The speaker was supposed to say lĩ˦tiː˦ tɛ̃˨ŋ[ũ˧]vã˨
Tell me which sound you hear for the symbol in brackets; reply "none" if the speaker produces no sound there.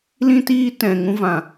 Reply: ũ˧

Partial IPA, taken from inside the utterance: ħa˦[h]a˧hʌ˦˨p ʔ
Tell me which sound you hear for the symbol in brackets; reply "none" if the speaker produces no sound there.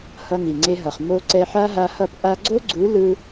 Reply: ɦ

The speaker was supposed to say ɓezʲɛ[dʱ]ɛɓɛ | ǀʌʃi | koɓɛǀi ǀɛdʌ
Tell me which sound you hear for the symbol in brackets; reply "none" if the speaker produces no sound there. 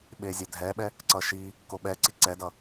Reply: dʱ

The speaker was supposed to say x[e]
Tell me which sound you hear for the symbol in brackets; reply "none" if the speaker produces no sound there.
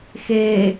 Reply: e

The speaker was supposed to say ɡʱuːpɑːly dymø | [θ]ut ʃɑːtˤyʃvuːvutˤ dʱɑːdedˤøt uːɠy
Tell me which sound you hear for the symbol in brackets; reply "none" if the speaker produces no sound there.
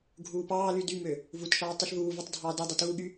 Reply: v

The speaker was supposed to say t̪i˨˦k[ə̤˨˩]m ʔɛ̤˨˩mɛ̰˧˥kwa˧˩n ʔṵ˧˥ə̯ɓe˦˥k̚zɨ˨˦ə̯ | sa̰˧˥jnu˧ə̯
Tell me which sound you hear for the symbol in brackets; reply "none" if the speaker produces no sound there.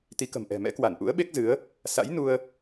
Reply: ə̤˨˩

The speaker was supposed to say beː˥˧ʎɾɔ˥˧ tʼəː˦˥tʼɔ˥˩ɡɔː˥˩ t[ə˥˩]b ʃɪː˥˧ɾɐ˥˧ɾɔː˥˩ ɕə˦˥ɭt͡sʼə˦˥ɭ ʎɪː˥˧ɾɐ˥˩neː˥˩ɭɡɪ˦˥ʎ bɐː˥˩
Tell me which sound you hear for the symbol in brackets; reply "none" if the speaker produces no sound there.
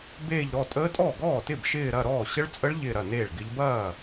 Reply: ɪ˥˩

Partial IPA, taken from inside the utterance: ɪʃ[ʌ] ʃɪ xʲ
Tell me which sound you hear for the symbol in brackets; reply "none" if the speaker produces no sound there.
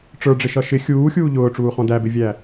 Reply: ʌ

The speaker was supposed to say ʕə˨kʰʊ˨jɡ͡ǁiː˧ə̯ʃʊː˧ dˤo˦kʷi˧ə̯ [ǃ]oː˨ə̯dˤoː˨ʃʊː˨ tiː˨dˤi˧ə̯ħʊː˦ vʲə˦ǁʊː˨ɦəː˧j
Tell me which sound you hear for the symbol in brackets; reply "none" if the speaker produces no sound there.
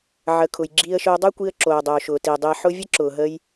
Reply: ǁ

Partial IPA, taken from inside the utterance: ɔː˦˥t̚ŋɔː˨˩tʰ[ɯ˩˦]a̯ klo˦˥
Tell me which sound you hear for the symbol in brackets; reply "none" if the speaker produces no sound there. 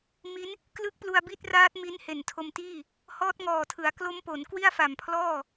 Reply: ɯ˩˦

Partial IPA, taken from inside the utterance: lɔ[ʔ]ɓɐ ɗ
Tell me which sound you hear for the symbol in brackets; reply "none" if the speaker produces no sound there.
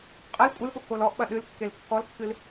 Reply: ʔ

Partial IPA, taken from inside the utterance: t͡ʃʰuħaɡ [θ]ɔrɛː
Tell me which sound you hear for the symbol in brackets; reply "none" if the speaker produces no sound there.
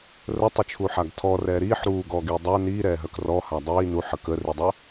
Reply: tʰ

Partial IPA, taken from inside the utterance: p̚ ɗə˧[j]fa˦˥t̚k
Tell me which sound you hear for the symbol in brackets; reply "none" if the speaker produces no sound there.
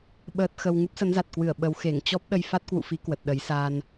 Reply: j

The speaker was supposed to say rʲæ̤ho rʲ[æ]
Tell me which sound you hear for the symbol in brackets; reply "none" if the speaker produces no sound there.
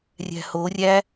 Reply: æ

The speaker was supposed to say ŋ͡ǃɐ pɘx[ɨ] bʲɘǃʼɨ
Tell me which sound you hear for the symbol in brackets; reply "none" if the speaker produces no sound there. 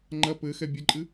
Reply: ɛ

